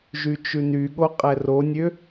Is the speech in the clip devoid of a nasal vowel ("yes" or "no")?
yes